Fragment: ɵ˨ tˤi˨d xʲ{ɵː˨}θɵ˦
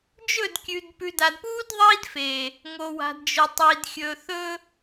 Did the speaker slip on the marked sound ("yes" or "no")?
no